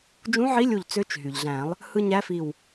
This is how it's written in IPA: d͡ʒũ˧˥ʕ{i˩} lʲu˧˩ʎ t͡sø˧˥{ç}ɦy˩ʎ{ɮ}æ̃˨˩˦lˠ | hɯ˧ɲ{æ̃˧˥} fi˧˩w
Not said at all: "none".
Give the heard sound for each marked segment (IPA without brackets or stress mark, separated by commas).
i˧˥, t͡ʃ, ɮ, æ˧˥